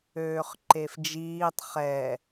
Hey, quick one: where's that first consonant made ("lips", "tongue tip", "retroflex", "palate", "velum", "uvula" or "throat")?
uvula